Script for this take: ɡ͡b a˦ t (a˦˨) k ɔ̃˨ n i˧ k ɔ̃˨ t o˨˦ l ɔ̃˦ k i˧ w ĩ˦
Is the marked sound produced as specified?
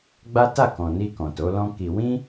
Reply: yes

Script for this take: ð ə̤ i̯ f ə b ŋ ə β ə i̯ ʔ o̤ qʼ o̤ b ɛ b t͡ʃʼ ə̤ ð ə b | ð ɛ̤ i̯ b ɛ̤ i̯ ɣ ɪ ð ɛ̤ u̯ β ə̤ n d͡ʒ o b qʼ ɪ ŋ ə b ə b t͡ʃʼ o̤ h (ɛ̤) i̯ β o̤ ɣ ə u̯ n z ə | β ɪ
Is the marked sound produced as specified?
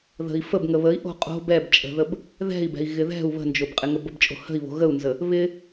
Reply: no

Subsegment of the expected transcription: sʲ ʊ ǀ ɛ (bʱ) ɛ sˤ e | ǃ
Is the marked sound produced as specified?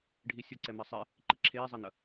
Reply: no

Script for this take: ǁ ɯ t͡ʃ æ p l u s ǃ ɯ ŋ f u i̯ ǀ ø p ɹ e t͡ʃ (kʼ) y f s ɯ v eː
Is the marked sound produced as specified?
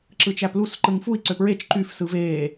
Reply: no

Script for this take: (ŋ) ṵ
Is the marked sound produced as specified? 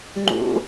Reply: no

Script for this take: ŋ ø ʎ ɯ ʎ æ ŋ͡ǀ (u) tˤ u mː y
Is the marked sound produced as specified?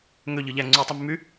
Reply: yes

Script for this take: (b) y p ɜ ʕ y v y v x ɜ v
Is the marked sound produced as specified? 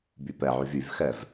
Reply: yes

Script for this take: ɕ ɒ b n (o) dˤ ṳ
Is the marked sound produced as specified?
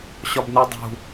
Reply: no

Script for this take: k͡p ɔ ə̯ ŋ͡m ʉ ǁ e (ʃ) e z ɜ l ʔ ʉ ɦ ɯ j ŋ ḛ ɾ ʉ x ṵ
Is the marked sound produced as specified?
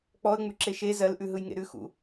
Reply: yes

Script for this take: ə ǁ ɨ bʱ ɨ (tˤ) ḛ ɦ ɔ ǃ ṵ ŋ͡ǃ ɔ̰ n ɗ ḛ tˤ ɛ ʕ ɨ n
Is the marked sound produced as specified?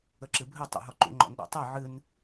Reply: yes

